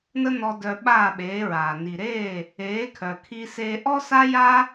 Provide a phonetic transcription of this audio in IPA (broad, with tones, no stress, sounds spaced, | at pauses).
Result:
n ə˥ n ɔ˧ d œ˧ ɓ aː˥˩ ɓ eː˩˥ ɹ aː˩ n i˩ ɾ eː˥˩ | eː˩˥ kʰ œ˩ kʰ i˧ s eː˧ ʔ ɔ˥ s a˥ j a˥